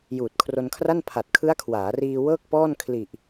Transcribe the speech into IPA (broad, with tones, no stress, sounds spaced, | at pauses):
j uː˨˩ t̚ kʰ r o˧ n kʰ r a˥˩ n pʰ a˨˩ t̚ kʰ ɯ˦˥ a̯ kʰ w aː˩˦ r iː˧ w ɤː˥˩ k̚ p ɔː˥˩ n kʰ l i˨˩ ʔ